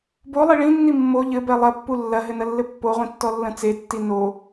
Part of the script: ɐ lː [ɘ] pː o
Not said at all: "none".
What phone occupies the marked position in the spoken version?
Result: ɘ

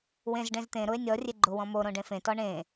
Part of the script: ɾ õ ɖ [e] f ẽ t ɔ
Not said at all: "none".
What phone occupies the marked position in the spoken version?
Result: ẽ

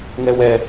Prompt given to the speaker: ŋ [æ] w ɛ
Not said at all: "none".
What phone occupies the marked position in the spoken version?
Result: ɛ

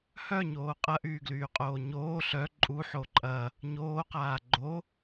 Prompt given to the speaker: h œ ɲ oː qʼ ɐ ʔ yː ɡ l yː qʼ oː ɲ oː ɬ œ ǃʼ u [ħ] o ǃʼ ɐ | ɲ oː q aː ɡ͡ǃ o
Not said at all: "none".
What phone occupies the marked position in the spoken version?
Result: ħ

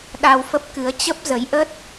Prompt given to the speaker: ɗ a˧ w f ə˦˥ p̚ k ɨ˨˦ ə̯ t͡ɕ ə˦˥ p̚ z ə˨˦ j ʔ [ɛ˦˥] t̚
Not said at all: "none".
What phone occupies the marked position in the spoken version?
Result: ə˦˥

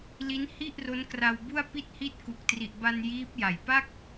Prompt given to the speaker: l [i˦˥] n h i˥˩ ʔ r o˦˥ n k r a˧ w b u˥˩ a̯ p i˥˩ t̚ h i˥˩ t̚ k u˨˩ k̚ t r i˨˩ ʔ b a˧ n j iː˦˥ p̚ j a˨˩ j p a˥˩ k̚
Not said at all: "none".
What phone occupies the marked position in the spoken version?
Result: i˦˥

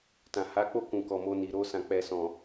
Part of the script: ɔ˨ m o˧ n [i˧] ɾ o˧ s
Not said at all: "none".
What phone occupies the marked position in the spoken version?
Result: i˨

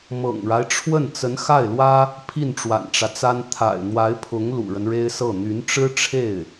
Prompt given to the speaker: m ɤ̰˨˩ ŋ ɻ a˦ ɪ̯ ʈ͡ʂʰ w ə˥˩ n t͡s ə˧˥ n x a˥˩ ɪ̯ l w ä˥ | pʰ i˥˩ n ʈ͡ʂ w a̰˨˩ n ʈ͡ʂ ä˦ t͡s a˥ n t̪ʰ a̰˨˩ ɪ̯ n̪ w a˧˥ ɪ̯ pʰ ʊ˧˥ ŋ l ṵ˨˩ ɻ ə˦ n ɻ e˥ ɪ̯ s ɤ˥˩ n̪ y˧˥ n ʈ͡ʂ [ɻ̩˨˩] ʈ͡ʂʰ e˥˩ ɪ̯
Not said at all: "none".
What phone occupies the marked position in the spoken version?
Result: ɻ̩˥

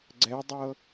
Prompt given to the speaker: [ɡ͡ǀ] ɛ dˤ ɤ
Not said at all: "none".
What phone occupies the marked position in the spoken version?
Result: ɡ͡ǀ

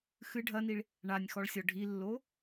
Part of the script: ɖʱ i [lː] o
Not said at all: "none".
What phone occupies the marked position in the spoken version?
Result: lː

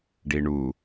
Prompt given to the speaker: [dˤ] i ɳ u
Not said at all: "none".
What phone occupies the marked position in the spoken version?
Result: ɖ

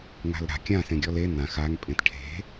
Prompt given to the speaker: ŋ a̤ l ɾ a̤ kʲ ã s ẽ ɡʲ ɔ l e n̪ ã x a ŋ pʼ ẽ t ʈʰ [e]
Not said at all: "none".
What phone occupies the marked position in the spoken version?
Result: e̤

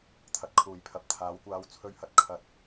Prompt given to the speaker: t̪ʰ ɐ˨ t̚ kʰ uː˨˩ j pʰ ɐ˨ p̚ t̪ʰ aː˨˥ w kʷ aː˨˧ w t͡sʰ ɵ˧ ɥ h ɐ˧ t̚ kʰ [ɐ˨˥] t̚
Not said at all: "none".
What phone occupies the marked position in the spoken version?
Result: ɐ˧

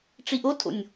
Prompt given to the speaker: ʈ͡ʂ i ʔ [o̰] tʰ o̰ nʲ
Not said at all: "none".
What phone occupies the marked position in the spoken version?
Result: o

